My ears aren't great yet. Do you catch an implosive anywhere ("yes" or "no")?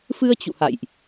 no